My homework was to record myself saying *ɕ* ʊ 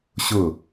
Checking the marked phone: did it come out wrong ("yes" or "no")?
no